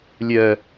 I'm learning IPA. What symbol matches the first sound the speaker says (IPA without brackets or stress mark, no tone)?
lʲ